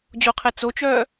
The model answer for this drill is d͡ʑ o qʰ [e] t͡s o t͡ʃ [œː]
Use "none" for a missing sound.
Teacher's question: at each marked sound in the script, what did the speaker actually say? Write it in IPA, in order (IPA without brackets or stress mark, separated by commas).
e, œː